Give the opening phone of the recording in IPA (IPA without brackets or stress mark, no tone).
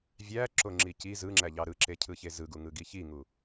vʲ